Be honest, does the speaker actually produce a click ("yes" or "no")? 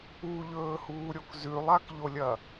no